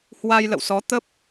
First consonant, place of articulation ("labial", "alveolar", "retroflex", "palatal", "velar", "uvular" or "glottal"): glottal